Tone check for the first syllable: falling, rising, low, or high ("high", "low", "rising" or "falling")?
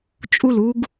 falling